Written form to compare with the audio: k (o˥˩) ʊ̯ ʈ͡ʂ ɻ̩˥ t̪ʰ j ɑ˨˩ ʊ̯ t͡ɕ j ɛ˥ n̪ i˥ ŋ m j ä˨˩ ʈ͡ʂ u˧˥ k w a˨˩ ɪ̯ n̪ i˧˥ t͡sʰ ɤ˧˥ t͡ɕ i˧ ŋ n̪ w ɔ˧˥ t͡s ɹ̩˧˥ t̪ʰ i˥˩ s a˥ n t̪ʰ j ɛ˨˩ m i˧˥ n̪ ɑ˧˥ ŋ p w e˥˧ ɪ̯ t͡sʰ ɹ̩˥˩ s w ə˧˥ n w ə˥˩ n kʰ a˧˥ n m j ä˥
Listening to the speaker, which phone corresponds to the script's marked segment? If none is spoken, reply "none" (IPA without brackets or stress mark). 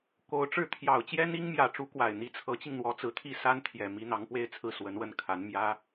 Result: o˧˥